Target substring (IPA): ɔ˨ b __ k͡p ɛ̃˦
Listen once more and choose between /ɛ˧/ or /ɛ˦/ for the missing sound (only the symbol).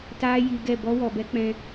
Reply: ɛ˦